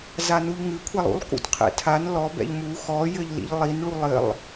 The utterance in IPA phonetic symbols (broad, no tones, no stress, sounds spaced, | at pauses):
z a n u ʎ ŋ ɨ kʷʰ ɛ lˠ ṵ lˠ k ṵ t qʰ ɛ̰ tʰ a n l ɔ b ɛ̰ ʎ m u x ɔ j ɘ ʎ l ḭ ʎ lˠ i n ɭ u lˠ ɘ lˠ